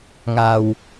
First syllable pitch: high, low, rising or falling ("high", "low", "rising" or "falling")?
low